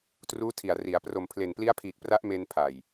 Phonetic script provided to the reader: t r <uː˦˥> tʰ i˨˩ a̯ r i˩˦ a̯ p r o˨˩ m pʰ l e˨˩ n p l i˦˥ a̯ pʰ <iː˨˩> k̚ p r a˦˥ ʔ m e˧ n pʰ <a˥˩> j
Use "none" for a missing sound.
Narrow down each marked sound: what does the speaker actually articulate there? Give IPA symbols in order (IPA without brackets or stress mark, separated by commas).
uː˦˥, iː˨˩, a˨˩